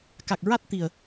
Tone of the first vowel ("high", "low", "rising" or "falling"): low